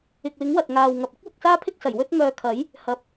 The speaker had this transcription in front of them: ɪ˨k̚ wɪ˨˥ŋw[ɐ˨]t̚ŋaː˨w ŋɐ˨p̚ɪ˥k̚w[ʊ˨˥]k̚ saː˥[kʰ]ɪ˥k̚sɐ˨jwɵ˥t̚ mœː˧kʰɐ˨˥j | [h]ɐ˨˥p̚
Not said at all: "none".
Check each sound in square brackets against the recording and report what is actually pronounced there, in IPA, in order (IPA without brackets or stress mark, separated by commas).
ɐ˨, ʊ˨˥, pʰ, h